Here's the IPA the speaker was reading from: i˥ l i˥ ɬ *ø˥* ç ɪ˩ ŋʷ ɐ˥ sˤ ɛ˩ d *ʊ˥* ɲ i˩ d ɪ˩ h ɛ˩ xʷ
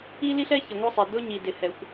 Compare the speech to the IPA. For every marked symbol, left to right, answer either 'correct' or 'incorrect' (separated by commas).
incorrect, correct